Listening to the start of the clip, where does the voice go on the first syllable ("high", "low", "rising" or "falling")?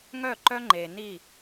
falling